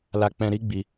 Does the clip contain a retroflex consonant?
no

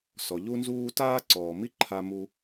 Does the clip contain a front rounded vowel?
no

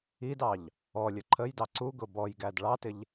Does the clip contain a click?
yes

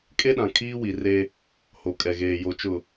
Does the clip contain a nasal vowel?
yes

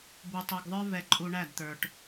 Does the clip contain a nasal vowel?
no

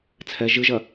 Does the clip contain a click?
no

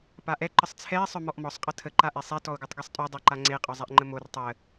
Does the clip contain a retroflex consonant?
no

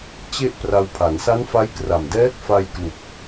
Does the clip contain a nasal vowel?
no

